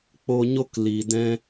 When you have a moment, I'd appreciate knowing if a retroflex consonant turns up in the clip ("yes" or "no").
no